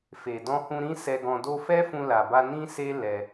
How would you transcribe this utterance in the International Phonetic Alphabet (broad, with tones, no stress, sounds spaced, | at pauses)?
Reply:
f e˨ d ɔ̃˧ h ũ˧ ɾ ĩ˦ s ɛ˧ ɡ ɔ̃˧ d o˦ f ɛ˦ f ũ˧ l a˨ b a˧ n ĩ˦ s e˦ l ɛ˧